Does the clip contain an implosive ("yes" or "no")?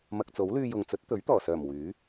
no